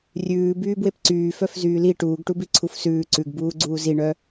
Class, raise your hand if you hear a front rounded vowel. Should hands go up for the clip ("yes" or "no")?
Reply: yes